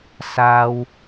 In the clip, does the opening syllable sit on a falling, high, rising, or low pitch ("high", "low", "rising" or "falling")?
high